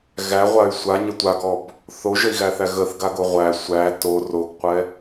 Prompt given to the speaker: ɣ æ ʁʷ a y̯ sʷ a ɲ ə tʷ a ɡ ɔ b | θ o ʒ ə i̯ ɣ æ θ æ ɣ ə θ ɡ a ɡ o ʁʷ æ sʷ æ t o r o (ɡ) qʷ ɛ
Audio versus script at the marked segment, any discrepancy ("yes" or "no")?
no